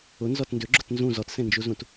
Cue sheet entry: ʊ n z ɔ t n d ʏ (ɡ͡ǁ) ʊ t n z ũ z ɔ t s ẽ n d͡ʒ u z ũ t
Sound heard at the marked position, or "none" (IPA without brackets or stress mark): ɡ͡ǁ